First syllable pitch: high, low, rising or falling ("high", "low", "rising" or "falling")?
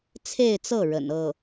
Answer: falling